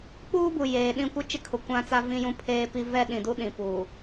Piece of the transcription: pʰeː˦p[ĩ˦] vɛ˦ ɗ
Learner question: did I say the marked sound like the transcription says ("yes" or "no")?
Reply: no